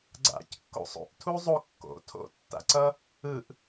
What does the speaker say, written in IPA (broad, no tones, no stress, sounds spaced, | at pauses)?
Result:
ɡ͡ǀ a̰ c kː o̰ sˤ o̰ ʔ tʰ u zˤ o kː o̰ tʰ o̰ tː a̰ ǀ ʌ | ɯ ʔ